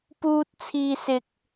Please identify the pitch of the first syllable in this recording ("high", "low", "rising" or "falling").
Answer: high